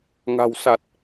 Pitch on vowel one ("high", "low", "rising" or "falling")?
low